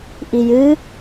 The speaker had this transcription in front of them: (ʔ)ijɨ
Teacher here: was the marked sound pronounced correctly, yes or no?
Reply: yes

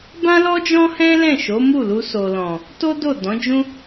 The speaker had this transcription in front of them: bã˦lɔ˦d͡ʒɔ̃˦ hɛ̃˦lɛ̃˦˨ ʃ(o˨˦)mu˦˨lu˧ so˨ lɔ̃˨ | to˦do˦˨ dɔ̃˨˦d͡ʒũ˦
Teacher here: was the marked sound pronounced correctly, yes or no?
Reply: yes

